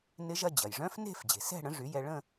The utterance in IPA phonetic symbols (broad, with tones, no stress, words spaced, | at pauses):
nɪ˦˥ʒɐ˥˧ d͡ʑɐ˩jʐœ̃˦˥fne̤˥˧f d͡ʑe̤˩sɛ̤˥˧ɽə̃˩˥ ʐy˩˥jɛ˧ ɭə̃˥˧